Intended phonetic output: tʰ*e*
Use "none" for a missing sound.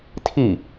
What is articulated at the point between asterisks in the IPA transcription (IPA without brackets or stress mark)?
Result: i